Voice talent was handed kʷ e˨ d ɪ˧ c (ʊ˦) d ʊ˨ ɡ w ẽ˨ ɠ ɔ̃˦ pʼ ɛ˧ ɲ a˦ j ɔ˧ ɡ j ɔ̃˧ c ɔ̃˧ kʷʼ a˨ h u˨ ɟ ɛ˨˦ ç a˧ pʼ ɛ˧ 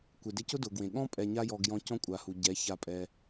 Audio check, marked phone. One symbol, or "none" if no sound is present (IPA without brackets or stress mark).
ʊ˦